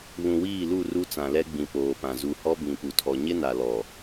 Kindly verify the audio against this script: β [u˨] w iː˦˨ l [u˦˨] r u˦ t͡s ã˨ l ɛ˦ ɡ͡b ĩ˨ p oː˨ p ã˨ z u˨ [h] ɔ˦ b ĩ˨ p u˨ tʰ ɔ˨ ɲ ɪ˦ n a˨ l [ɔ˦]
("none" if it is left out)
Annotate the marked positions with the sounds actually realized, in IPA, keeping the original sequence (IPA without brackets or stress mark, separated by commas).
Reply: ũ˨, u˦˨, h, ɔ˨